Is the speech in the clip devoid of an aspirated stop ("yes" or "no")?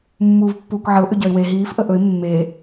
yes